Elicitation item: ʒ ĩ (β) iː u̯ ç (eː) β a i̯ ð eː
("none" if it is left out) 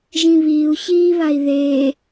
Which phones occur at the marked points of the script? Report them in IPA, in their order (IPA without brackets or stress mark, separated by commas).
β, iː